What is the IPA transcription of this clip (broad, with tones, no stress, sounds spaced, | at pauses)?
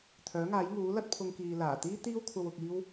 t̪ʰ œː˨˥ ŋ aː˨˥ j ŋ uː˨˥ l ɐ˥ t̚ pʰ ʊ˧ ŋ k iː˨ l aː˨˩ t̪ iː˥ t̪ iː˥ w kʷʰ ɐ˧ w ʊ˧ k̚ iː˥ w